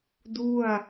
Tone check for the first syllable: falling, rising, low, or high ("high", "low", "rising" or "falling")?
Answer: falling